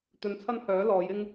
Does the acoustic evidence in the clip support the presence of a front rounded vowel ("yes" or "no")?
yes